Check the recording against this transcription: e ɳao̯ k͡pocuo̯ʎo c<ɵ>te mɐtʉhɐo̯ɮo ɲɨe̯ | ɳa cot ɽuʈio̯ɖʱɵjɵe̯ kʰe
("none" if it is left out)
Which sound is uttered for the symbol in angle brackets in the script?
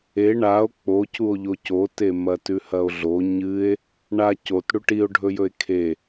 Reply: o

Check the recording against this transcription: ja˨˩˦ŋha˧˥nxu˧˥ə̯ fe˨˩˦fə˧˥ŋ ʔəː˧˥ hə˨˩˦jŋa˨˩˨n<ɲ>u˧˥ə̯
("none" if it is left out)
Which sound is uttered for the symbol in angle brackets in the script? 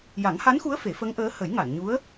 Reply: ɲ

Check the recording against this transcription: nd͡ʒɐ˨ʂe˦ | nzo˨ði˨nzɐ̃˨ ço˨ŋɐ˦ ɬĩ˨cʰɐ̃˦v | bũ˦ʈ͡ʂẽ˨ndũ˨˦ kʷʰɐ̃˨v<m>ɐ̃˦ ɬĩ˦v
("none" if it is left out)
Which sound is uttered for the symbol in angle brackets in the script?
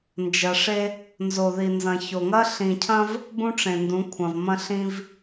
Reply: m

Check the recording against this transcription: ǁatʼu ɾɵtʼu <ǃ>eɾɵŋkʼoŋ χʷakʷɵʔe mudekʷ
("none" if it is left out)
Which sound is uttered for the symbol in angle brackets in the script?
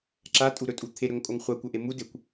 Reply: t̪ʰ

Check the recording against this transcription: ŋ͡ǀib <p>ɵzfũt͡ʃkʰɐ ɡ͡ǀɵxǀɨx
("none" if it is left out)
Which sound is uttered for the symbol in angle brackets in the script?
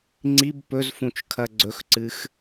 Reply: p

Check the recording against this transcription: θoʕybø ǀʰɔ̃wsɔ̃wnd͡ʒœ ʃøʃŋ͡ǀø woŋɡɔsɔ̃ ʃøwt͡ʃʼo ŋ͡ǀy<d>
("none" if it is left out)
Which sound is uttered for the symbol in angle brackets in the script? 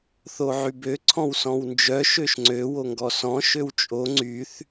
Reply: θ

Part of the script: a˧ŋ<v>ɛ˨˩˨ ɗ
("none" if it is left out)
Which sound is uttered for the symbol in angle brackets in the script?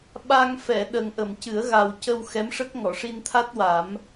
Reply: f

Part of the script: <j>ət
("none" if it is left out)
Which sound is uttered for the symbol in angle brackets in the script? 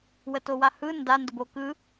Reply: w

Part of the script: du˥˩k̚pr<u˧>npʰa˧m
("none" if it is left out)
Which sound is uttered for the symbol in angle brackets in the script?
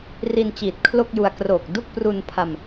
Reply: u˧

